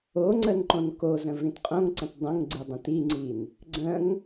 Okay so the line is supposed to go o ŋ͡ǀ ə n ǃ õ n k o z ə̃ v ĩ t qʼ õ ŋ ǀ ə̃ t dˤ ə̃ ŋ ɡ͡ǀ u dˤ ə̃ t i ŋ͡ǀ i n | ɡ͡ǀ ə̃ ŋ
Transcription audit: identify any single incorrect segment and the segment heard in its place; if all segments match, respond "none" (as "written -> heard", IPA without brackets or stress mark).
u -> ɯ